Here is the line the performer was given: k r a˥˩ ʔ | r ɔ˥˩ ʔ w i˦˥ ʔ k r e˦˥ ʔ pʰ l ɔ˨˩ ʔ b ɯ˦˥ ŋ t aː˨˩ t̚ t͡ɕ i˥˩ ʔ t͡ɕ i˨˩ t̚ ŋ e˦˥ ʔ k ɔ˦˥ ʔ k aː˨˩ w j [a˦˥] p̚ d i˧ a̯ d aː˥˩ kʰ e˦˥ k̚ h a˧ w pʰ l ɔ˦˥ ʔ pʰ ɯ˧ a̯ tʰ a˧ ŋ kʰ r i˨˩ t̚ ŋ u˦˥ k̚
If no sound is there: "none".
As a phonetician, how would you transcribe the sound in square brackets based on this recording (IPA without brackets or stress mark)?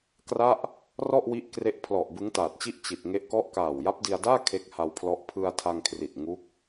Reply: a˦˥